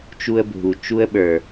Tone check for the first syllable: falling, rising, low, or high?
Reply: high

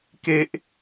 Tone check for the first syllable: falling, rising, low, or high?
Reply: high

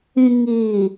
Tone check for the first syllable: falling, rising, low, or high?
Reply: low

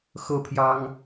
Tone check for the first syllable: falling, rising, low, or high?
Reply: high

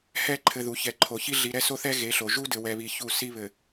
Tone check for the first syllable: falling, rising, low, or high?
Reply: falling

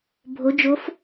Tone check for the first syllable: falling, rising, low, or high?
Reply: rising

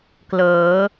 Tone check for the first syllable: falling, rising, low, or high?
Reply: rising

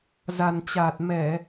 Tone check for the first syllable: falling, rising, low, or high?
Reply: low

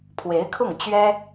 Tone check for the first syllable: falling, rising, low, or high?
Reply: rising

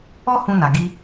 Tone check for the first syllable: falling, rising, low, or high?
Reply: high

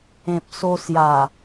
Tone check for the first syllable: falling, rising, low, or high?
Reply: low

